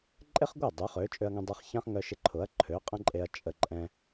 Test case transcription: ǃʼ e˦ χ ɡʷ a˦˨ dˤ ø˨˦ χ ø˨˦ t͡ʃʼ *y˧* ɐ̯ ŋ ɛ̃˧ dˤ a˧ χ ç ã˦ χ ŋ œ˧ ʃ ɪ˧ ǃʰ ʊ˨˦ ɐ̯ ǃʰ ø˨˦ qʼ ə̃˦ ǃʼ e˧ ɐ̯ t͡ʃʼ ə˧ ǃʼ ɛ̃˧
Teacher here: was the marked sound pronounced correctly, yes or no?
no